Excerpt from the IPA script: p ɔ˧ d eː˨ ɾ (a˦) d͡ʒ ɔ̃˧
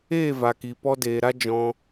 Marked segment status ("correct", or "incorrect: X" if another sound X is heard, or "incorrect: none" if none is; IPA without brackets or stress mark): correct